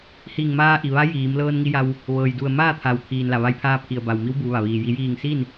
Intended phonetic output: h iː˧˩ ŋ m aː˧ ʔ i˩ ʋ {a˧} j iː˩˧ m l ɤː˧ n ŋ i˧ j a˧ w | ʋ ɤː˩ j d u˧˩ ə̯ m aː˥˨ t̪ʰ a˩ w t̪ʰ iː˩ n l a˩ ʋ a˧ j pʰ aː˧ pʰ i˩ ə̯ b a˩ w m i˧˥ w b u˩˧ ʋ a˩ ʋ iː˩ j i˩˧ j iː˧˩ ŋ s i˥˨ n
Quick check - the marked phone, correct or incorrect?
incorrect